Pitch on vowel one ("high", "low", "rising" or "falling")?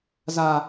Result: low